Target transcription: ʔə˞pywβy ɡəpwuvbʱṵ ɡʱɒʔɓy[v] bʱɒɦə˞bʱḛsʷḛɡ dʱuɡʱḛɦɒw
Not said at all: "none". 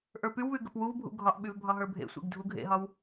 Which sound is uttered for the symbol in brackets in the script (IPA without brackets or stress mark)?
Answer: v